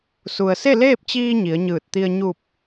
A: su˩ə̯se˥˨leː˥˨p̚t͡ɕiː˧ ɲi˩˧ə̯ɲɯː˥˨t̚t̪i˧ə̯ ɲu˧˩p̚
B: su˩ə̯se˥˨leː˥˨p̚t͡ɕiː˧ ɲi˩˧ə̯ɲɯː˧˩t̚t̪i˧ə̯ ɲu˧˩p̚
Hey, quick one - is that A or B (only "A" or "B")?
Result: B